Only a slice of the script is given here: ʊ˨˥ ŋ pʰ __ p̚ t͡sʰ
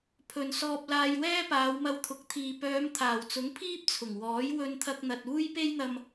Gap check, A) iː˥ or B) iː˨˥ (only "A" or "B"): A